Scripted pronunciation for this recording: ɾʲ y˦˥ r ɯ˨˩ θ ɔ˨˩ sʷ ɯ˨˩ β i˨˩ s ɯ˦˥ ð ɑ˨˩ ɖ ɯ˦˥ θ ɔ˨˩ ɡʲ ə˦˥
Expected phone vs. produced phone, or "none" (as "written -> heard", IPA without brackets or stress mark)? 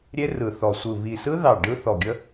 y˦˥ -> e˦˥